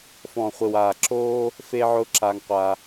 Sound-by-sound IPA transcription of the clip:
f ɔ̃˨ χʷ ɪ˨ w aː˨ ǁ oː˧ | f e˧ ʕ ʊ˧ ǁ a˧ ŋ qʷ a˧

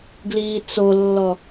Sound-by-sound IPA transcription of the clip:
ɡ l iː t͡s o lː ɔ

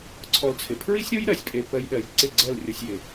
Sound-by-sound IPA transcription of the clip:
ǀʰ ɔ˧ l t͡sʰ ɪ˨ pʰ ɹ i˦ sʲ ɾ o˦ j ɾ ɜ˨ sʲ pʼ e˧ p ɜ˧ j ɗ ɜ˨ j ǀ ɪ˦˨ ɡ͡ǀ ɜ˦˨ l rʲ ɔ˧ sʲ j ɪ˨

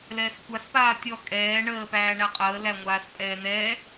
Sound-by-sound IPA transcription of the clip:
l ɛː s xʷ a s p aː tʲ ɔ kʼ ɛː ɳ əː p æː ɳ æ qʼ əː l æ ŋʷ aː s pʼ ɛː n̪ ɛː

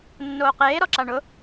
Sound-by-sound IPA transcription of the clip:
nː oː q eː ɾ ɔ ǁ a ɳ ʊ

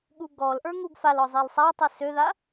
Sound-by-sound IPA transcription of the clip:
ɠ u ɡ ɔ l ʔ ə˞ ŋ u ɡ f a l ɔ zˤ i l sˤ a tˤ i s ø ð a

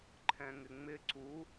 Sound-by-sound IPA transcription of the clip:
ǃʰ ɛ̃ ŋ ɪ ŋ͡m ɪ ǀ u

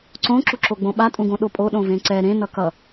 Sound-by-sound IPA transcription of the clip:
ǀ õ ǁ u ǁ o ɡ͡b õ ɓ a tʼ ũ ɡ õ ɗ o pʼ o ɗ õ v ẽ ǀ ɛ ɾ ẽ n ʌ k ʌ

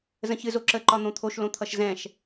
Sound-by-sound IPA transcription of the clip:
z ə̃ ç ɨ z o ǁ ə ǃ ɒ n̪ õ t̪ʰ o ʃ l õ t̪ʰ ʌ ʃ z ɛ̃ ʃ

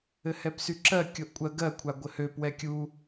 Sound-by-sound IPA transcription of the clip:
ɘ h ɛ p s y ǁ ɜ kʲ o ʔ kʷʼ ɜ ɡ ɜ kʷʰ a ɡʷ ɘ h ø p w ɛ kʲ u

